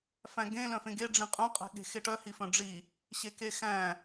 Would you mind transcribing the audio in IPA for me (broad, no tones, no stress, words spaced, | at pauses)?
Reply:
fæ̃ɡẽ lœ̃fẽɡe ɖ͡ʐĩqʼœ̃ qʼɛ̤ɠe̤xeʈœ hifœ̃ɖ͡ʐi | ɕekexæ̃